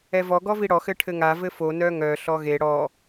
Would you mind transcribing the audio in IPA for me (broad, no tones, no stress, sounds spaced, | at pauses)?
ɛ v ɔ ɡ ɔ v i ɽ ɔ x ɘ ʈʰ ɘ ŋ a v ɘ f o n œ ŋ œ ɬ ɔ ɣ e ɽ ɔ